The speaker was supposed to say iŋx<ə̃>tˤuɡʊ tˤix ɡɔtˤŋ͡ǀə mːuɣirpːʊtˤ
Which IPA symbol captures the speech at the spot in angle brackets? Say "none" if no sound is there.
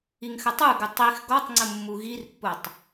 ə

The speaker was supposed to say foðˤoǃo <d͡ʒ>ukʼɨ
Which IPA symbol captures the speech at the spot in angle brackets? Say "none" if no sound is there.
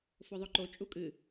t͡ʃʼ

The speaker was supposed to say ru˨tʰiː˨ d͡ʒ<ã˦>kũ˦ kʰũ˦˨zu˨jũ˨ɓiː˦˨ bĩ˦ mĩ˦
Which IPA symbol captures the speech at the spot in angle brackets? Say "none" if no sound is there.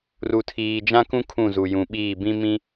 ã˦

